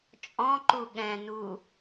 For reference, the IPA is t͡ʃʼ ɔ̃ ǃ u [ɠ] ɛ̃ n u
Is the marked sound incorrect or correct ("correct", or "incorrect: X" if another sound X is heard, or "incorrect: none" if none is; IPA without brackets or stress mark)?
correct